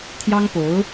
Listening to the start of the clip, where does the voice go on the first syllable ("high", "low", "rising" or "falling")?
high